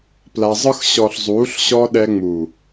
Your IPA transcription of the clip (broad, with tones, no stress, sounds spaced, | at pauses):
p l a˧ zˤ ɯ˦ x ɕ ɔ˨ ɬ zˤ uː˨˦ ɬ ɕ ɔ˧ ɗ ɛ˧ ŋ͡m u˨